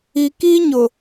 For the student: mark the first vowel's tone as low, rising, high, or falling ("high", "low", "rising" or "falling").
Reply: low